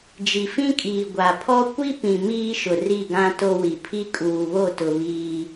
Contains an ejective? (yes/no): yes